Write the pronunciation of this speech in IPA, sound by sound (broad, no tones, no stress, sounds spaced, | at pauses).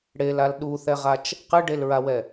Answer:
ɽ e l a l ɗ u θ ɛ ʁ a t͡ʃ | q ɨ ɖ e l ɹ a w ɛ